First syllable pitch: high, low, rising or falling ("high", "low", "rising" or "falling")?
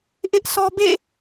high